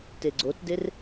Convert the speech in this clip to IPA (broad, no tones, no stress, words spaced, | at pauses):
teɡ͡ǀotder